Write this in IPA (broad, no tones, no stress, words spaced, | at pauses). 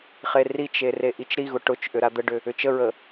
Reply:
χerit͡ʃe reʔit͡ʃɾiɣʊ ʈʊt͡ʃʔʏ ɾad̪əɖʏ | ʏt͡ʃəɹə